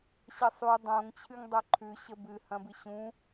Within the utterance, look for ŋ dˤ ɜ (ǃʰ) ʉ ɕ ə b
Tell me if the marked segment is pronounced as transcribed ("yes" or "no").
yes